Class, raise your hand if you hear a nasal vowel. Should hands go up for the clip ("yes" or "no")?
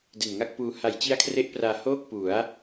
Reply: no